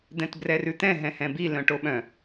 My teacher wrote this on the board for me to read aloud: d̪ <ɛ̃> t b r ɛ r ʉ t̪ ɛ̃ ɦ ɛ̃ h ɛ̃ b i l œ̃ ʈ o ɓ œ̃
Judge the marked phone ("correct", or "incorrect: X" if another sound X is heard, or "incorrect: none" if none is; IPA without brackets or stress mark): correct